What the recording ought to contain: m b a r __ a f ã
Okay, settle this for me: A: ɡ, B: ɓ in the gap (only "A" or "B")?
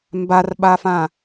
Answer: B